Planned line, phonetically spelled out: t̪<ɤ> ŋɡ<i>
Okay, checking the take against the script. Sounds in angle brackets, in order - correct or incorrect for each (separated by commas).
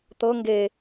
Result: correct, incorrect